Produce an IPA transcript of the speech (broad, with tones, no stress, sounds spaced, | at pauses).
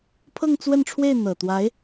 pʰ ɤ˥˧ ŋ t͡s w ə˥˧ n ʈ͡ʂʰ w e˥˩ ɪ̯ n̪ ɤ˨˩ t̪ w a˧˥ ɪ̯